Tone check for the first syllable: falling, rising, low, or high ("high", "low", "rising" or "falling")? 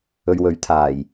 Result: low